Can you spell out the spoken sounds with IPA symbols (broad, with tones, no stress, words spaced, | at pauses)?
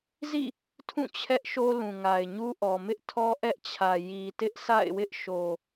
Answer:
zḭ˦˨ | tʰũ˦˨ t͡ɕʰɛ˦ʔʃo˦ lũ˨ŋa˨ɪ̯ɲu˦ ʔɔ˨mɪ˦ʔtʰɔ˦ ʔɛ˦ʔt͡ɕʰä˨ ji˨tɪ˦ʔsʰa̰˦˨ɪ̯wɪ˦ʔ ʃo˨